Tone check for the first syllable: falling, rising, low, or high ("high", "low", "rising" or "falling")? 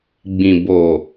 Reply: low